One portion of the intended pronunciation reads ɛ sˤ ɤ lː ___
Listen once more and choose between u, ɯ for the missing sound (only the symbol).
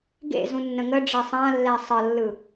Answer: ɯ